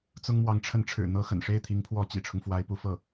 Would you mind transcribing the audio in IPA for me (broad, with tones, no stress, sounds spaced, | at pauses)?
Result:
t͡s ʊ˥ ŋ m w ɑ˧˥ ŋ ʈ͡ʂʰ ə˧˥ n ʈ͡ʂʰ ɻ̩˨˩ n̪ ɤ˥ x ə̰˨˩ n ʂ e˥˩ ɪ̯ t̪ʰ i˧˥ ŋ pʰ w ɔ˧˥ t͡ɕ ḭ˨˩ ʈ͡ʂʰ ʊ˦ ŋ f w a˧˥ ɪ̯ p u˧˥ f ɤ˥˩